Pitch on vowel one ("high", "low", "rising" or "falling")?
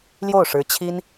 falling